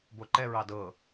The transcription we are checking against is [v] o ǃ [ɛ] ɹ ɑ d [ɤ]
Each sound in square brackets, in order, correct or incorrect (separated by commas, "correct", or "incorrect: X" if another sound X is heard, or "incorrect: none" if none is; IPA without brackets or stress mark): incorrect: b, correct, correct